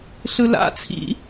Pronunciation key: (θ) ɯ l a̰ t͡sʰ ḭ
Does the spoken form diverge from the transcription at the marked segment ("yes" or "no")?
yes